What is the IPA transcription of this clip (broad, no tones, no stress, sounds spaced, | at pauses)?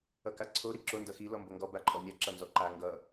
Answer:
ʌ k a ǀʰ o ɾ i ǁ o n d ʌ x i l ɔ m b o ŋ ɡ ɔ b a ǃʼ ɔ nʲ a ǁ ʌ n z ɔ ǃ a ŋ ɡ ʌ